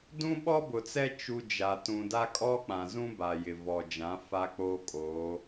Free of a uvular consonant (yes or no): yes